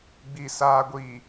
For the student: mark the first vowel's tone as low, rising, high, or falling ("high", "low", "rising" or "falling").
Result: low